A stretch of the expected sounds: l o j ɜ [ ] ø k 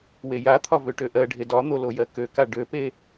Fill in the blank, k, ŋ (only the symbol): k